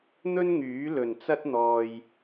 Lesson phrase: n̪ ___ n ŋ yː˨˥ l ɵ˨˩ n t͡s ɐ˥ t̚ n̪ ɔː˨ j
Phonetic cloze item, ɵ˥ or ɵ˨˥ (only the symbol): ɵ˥